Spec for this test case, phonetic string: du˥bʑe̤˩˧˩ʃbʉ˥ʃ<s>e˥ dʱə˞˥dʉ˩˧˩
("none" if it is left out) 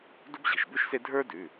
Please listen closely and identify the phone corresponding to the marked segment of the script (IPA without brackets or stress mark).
s